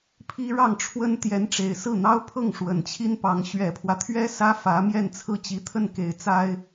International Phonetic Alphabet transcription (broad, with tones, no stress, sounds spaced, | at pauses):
pʰ i˥ ɻ ɑ˥˩ ŋ ʈ͡ʂʰ w ə˥ n t̪ j ɛ˧˥ n ʈ͡ʂ e˨˩ ɪ̯ s ɹ̩˥˩ n̪ ɑ˥ ʊ̯ pʰ ɤ˥˩ ŋ ʂ w ə˨˩ n t͡ɕʰ i˥ n p ɑ˧˥ ŋ ɕ ɥ ɛ˨˩ pʰ w ä˦ t̪ʰ ɥ ɛ˥ s ä˥ f ä˧˥ m j ɛ˥˧ n t͡sʰ ɹ̩˥˩ t͡ɕ i˧˥ t̪ʰ ə˥˩ n k e˨˩ ɪ̯ t͡s a˥ ɪ̯